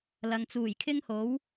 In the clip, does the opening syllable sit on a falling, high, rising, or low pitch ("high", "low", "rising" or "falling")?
low